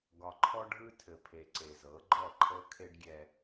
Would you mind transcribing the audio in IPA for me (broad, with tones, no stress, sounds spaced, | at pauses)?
ɡ ɒ˨ ǃʰ ɔ˦ ɖʱ ɯ˦ tʰ ɘ˨ pʰ e˨ ǀ e˨ z ɤ˨˦ ɡ͡ǃ ɔ˦˨ ǃʰ ɤ˦ kʰ e˦ ɖ ɡʲ ɛ˦